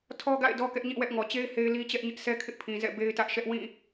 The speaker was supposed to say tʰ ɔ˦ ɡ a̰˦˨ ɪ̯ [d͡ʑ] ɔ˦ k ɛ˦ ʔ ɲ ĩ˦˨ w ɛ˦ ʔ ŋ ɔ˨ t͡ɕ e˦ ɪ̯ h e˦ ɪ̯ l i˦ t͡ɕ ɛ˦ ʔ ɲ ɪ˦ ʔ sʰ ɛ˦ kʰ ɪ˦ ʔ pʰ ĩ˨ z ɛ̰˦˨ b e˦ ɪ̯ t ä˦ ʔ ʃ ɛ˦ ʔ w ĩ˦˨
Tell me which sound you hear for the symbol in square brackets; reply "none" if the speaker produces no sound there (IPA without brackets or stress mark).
d